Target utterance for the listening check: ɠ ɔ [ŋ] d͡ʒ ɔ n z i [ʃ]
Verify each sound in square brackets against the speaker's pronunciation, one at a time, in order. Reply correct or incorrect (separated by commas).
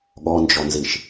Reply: incorrect, correct